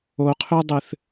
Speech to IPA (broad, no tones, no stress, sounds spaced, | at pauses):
o qʰ ʉ dˤ ɨ θ